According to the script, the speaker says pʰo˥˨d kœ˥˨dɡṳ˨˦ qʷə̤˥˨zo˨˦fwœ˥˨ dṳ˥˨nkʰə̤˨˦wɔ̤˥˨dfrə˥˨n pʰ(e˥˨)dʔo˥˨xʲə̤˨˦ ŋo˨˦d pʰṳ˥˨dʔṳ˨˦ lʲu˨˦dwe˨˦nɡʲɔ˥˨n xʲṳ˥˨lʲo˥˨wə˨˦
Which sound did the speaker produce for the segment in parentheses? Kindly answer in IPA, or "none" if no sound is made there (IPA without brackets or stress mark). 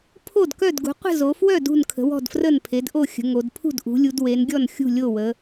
e˨˦